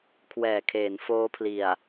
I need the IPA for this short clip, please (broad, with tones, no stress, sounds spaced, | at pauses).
kʰ w ɛː˨˩ kʰ eː˩˦ n f oː˦˥ pʰ l i˨˩ a̯